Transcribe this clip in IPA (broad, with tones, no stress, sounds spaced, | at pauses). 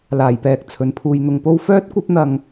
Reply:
l aː˨˩ j p ɛː˨ k̚ t͡sʰ ɵ˨˧ n pʰ uː˧ j n̪ ʊ˧ ŋ p o˥ w f œː˥ t̚ kʷ ɐ˥ p̚ n̪ ɐ˧ ŋ